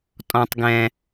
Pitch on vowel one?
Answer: low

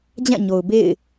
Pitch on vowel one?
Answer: falling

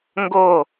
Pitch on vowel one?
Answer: falling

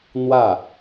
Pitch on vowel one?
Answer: falling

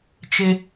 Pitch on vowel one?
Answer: high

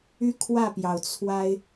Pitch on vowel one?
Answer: high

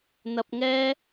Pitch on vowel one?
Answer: high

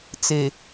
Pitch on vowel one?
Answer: low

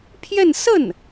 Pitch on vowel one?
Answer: falling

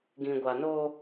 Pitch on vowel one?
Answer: low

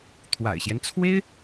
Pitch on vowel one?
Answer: low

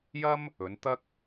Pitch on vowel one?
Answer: high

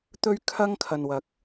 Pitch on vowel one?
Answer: high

